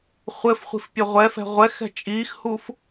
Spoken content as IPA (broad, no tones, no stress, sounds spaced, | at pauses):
χʷ ɘ f χʷ i̤ f pʲ e ʁʷ ɛ f ɛ̤ ʁʷ ɛ x ɛ̤ t͡ʃʼ iː x h u f